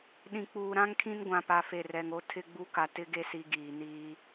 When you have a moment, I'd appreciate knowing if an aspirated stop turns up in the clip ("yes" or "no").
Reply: yes